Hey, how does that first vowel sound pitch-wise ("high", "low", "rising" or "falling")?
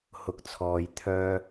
low